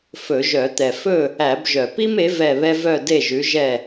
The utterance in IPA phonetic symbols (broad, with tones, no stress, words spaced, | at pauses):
fɵ˧˩˧ʒœ˧˩˧ t̪ɛ˨˩ fɵ˥˨ | æ˧˩˧bʒœ˨˩ pi˥me˨˥ vɛ˥˨βɛ˥ vœ˥˨de˥˨ ʒʉ˨˥ʒɛ˥˨